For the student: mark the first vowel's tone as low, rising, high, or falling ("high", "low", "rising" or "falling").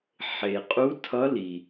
low